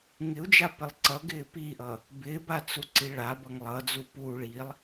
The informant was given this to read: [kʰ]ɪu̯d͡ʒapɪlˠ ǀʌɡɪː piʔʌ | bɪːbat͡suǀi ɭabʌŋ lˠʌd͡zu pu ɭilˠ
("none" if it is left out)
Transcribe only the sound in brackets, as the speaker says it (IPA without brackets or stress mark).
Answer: ŋ